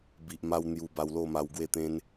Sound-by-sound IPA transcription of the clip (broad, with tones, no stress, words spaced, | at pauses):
bi˨ʔma˧w n̪ju˧ba˧wlo˥˧ ma˧wɡwe˥˧t̪ẽ˦n